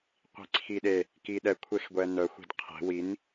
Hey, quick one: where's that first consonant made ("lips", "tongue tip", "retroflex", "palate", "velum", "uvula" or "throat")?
uvula